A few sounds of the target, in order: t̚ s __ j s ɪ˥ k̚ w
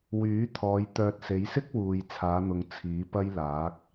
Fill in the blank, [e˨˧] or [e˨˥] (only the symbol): e˨˧